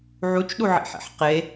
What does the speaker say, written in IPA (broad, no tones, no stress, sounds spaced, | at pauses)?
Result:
ʕ u t͡ʃ ɗ u ʕ ḭ ħ ḭ ħ q e